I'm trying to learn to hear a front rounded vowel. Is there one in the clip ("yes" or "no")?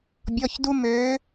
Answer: yes